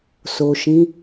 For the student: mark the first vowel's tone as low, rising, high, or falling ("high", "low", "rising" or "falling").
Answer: low